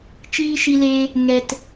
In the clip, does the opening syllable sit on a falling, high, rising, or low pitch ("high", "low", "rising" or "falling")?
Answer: high